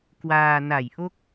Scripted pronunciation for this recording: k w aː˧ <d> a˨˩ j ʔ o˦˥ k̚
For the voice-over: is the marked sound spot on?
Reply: no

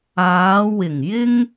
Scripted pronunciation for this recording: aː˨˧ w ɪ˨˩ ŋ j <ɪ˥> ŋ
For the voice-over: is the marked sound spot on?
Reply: yes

